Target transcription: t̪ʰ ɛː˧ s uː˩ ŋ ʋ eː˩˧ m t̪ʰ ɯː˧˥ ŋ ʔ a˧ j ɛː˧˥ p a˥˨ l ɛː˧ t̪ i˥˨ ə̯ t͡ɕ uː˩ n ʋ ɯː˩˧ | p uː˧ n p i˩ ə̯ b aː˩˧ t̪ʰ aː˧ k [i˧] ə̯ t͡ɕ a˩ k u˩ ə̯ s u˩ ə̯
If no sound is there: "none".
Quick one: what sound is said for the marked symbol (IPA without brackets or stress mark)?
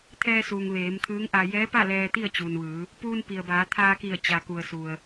i˧˩